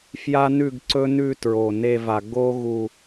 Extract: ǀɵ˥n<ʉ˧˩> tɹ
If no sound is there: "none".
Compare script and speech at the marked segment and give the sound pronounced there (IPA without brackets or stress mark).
ʉ˥˧